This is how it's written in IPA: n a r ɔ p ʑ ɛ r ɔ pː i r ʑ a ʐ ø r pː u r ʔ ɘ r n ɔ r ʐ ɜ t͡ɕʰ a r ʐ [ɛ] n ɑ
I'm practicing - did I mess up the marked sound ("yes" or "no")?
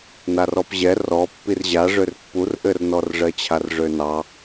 yes